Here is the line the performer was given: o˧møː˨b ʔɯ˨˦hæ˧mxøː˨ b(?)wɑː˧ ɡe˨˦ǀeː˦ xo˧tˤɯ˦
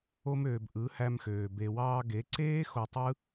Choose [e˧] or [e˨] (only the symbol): e˨